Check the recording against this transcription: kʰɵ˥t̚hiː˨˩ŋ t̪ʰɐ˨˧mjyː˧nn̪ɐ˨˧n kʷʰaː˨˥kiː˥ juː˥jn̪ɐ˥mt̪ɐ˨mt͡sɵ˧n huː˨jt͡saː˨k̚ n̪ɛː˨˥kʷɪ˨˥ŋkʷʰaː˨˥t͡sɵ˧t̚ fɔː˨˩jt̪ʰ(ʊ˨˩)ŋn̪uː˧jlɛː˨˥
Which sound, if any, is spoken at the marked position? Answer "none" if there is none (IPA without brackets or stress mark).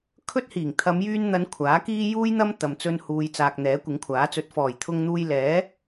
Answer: ʊ˧